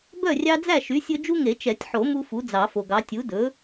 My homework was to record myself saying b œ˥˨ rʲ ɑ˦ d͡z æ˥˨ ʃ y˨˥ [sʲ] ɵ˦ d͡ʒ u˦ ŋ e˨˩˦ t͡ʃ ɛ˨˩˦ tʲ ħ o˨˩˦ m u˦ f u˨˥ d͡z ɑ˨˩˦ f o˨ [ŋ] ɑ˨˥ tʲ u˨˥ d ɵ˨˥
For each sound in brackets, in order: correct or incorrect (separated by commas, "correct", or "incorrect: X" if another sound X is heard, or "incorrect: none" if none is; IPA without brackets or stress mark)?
correct, incorrect: ɡ